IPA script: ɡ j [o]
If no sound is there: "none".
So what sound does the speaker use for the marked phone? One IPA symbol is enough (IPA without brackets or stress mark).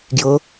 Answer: ɤ